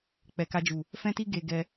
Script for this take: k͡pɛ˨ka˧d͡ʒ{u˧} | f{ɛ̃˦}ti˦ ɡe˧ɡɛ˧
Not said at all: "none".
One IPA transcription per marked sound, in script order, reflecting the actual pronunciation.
u˨, ɛ̃˦

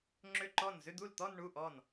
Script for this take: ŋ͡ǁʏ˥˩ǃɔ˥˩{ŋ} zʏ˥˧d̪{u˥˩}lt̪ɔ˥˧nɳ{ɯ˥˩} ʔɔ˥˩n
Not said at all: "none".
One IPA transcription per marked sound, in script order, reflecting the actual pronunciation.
n, u˥˩, u˥˩

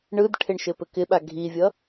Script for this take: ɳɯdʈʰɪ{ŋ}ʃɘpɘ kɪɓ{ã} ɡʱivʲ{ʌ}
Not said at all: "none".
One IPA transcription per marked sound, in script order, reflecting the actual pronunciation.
ɳ, a, ʌ

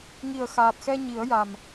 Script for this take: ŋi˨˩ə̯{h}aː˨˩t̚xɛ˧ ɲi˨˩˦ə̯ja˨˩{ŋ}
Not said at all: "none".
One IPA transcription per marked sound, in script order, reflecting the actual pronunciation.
x, m

